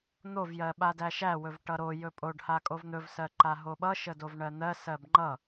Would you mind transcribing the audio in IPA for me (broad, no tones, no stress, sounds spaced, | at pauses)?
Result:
n̪ o v j ɜ ɓ a d æ ʃ æ w ɵ v ʈ ʌ ɾ o j ɵ pʼ o ɖ h a kʼ o v n̪ ɵ v s ɜ ǃ a ɦ o ɓ ʌ ʃ ə d o v ɳ ɜ n̪ ɜ s ɜ b ŋ͡ǃ ʌ